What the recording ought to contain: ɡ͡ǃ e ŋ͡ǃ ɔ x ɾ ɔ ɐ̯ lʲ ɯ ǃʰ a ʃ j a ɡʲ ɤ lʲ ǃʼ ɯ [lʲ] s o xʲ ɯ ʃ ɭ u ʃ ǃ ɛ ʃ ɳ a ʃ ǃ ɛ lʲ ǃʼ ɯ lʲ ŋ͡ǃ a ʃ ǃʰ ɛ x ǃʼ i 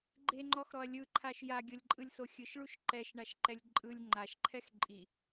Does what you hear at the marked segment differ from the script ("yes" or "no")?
no